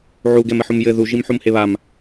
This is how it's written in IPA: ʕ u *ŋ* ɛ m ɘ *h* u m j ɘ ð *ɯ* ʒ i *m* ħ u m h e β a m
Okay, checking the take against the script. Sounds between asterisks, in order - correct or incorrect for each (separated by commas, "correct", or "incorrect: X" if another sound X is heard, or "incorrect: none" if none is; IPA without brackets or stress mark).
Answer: incorrect: ɡ, incorrect: ħ, incorrect: u, correct